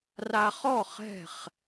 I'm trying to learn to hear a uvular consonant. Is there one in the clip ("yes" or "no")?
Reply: yes